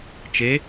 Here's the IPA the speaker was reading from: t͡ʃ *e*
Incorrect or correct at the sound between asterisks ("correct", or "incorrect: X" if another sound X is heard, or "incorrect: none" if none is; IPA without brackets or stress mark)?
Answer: correct